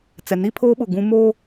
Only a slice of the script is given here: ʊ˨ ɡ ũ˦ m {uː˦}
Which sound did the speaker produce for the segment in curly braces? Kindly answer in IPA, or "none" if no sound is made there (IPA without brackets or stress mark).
oː˦